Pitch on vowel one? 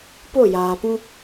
falling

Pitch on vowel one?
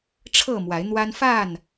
falling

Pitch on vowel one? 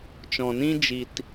low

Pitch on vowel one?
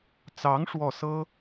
rising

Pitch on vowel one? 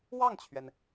falling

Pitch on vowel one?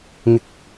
rising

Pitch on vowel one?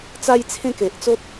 high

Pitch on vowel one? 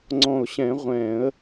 low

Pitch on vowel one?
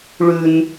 high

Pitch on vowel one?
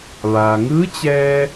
low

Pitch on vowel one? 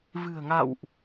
low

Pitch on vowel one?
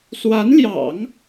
rising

